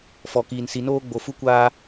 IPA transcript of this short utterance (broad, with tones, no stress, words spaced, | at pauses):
fɔ˨kiː˨nsi˨noː˦ ɡ͡bo˨fu˦kʷaː˦